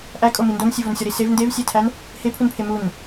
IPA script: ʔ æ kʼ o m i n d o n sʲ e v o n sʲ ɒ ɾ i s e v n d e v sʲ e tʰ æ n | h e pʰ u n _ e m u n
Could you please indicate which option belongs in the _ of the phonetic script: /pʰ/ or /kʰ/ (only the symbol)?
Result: pʰ